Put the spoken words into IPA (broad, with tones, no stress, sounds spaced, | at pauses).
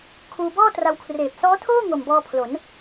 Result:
kʰ uː˧ b ɔː˥˩ t r a˧ w kʰ r eː˨˩ p̚ s ɔː˦˥ tʰ oː˥˩ ŋ o˨˩ m b ɔː˧ pʰ l o˩˦ n